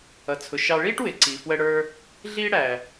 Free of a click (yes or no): no